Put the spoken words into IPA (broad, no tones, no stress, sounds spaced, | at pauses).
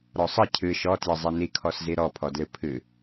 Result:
ɾ ɔ sˤ ə cʰ ɨ ʃ ɔ t j ə zˤ i n i kʰ ɔ s z i ɾ ɔ pʰ ɔ d l ɨ pʰ ɨ